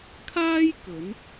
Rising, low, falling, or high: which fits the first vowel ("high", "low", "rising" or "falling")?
high